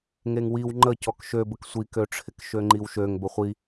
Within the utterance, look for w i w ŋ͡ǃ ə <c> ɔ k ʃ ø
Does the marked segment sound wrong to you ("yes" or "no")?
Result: no